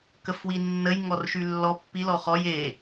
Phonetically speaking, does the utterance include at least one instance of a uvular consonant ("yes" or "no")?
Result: yes